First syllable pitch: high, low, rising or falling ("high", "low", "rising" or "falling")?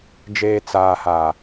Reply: low